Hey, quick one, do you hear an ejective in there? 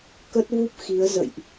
no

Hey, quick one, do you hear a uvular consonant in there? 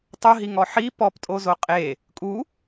yes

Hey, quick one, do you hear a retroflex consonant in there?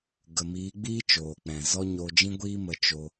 no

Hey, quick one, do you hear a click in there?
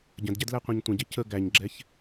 yes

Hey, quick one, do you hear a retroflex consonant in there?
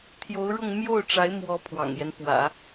yes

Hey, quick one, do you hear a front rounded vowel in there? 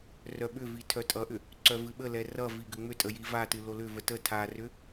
yes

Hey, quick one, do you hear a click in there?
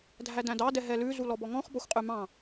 no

